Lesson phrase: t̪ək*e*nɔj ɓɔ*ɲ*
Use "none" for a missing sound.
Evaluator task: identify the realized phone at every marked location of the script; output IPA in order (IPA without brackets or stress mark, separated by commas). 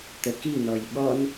i, n